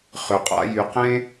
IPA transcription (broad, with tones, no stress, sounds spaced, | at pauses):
χ ʏ˩ qʼ a̰˥ j y˩ q ẽ˥